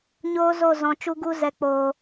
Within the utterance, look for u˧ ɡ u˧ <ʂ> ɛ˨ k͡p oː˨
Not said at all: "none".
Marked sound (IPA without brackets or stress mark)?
z